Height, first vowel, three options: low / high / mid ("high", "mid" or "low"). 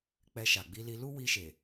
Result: mid